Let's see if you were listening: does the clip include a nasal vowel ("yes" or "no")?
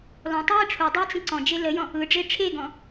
yes